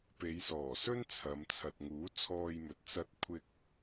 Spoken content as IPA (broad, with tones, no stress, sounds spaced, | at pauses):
p e˨˧ j s ɔː˨˩ s ɵ˥ n t͡sʰ ɐ˨˧ m t͡sʰ ɐ˨ t̚ ŋ uː˨˥ t͡sʰ ɔː˧ j m ɵ˨ t̚ t͡s ɐ˧ t̚ kʷʰ ɪ˧ k̚